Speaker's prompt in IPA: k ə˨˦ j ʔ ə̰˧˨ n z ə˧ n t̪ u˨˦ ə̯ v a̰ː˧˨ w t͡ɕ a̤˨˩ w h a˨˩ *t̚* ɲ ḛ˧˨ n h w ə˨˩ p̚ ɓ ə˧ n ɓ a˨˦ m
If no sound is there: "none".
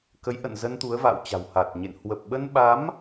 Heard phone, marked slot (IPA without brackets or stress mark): t̚